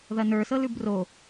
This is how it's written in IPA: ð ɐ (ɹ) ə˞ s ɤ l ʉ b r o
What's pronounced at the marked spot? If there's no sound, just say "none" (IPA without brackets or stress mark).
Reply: n